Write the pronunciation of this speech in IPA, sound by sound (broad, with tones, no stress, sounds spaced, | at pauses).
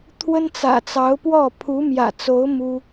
t̪ʰ w ə˥ n t͡s ä̰˨˩ t͡s ɑ˧˥ ʊ̯ p w ɔ˥˩ pʰ u˧˥ m j ä̰˨˩ t͡s o˧˥ ʊ̯ m u˥